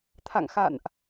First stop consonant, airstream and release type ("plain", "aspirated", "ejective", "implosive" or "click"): aspirated